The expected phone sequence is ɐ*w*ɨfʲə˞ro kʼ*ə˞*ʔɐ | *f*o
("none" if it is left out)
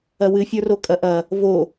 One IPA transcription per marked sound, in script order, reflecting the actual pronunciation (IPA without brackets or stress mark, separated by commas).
w, ɐ, v